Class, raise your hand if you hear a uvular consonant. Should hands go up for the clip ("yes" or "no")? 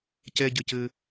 no